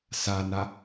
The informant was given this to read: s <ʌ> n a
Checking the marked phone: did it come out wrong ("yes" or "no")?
yes